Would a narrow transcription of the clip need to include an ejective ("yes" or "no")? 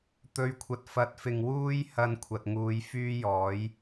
no